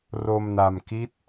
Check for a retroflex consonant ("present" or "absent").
absent